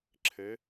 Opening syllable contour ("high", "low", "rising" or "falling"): rising